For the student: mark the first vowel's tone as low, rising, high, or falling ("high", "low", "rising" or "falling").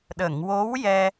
low